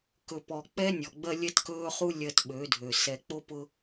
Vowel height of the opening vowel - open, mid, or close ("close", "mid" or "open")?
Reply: mid